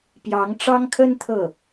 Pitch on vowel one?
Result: rising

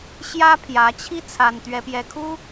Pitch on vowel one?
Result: high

